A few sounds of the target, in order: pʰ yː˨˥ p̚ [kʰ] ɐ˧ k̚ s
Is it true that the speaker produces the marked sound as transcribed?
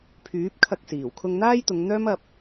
yes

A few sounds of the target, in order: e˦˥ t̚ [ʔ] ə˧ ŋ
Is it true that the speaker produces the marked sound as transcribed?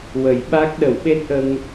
yes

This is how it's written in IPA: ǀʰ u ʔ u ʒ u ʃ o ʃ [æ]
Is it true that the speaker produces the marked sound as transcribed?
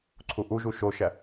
yes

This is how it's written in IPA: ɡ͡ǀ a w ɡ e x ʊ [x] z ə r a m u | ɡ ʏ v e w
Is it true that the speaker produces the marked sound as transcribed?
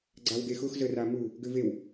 yes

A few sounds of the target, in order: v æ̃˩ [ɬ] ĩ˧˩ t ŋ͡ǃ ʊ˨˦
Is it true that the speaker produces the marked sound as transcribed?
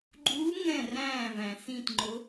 no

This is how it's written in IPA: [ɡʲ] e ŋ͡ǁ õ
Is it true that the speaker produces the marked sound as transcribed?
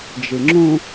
no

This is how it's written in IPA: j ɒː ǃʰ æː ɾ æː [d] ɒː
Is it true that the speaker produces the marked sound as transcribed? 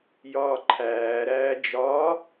no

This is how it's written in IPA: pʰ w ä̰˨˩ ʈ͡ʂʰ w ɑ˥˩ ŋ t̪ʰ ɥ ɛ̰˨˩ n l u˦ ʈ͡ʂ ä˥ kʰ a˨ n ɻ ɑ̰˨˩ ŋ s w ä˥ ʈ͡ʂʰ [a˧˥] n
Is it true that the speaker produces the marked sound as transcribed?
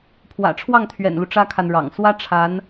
yes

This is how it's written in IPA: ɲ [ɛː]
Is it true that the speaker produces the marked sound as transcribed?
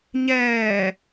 yes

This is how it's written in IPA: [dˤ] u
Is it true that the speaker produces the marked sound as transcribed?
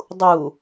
yes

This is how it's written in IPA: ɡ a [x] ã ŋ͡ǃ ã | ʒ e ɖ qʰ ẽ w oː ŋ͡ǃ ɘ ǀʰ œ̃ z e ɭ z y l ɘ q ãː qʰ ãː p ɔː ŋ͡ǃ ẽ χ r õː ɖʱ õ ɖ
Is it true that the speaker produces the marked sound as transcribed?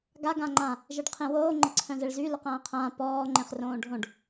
no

